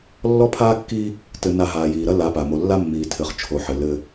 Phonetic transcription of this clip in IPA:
lːɔ˦pʰaː˦kːi˦ | tɘ˨na˨ ɦaː˨jiː˨ɾɐ˦ la˨˦pa˨ mo˨lːa˦ mːiː˨tʰɘ˨χ t͡ʃʰo˨ħɘ˨ lɘ˦

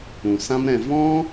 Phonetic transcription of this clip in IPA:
ũ˨sã˦mɾɛ̃˧ vɔ̃˦

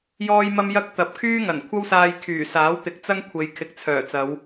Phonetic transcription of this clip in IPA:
jɔː˥jmɐ˥mjɐ˥k̚ t̪ɐ˨p̚kʰyː˥ ŋɐ˨˩nkʷʰɐ˥wsaː˧j kʰyː˨˩saː˨˥w t̪ɪ˨k̚t͡sɐ˥ŋ kʷʰe˨˧jkʰɪ˨˥k̚t͡sʰœː˨˩t͡sɐ˨˧w

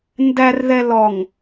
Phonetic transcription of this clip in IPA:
ndærðɛ lɔŋ

